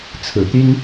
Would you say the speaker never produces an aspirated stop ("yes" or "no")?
no